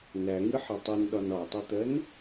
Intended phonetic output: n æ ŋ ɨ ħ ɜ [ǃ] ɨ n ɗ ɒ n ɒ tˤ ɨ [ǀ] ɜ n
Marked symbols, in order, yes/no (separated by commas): no, no